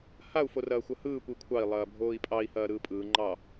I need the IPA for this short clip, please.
h a u̯ f o r ɐː xʷ ɐ h ɯː kʷ i kʷʰ ɑ i̯ lˠ ɐː bʱ oː i̯ pʼ ɑ i̯ h ɐː ɾ ɯː pʼ ɯː ŋ͡ǃ ɑ

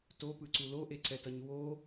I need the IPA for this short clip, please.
t o p ɯ ǀ u l o ʔ e ǀ ɛ t ʌ ɲ w o

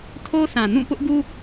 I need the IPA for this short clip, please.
tʰ o˦ s ã˨ n ũ˦˨ p ʊ˦ ʔ ɡ u˦

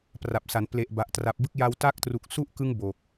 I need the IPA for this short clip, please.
p r a˨˩ p̚ s a˩˦ n p l e˨˩ ʔ b a˨˩ ʔ t r a˨˩ p̚ b ɯ˦˥ k̚ j a˧ w t a˦˥ k̚ t r u˨˩ k̚ s u˥˩ ʔ k ɯ˦˥ ŋ b o˨˩ k̚

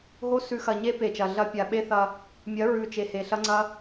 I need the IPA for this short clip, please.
ɦ o˦ s ʉ˨ x ɐ˨ ɲ e˦ p e˨ t͡ʃ ɐ˨ ɮ ɐ˦ pʲ a˨ ɓ e˦ θ ɐ˦ | mʲ ɐ˨˦ ɹ ʉ˨ t͡ʃ e˨ h e˨ ɬ ɐ˦ ŋ͡ǀ ɐ˦

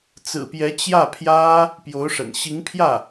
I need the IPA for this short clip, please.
t͡s ɹ̩˨˩ p j ɛ˧˥ t͡ɕ j ä˥˩ pʰ j ä˥ | p j o˧˥ ʊ̯ ʂ ə̰˨˩ n ɕ i˧˥ ŋ pʰ j ä˥˩

